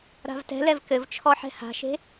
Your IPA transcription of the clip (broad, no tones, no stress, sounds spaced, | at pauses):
ɾ a̤ v t ɛ̤ l ɛ v k ɘ v t͡ʃʰ ɔ ħ ɛ̤ h a̤ ʃ e̤